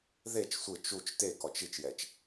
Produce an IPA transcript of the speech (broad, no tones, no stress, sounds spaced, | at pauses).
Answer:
ð e t͡ʃ sʷ ɯ t͡ʃ u t͡ʃ t e k ɔ t͡ʃ i t͡ʃ j ɛ t͡ʃ